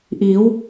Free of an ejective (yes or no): yes